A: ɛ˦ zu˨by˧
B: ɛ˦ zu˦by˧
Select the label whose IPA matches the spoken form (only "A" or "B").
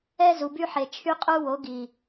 A